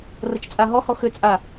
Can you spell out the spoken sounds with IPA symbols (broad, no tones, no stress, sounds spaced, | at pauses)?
r ə t͡ʃ t͡sʼ a ɦ ɔ h ɔ x ʏ t͡sʼ a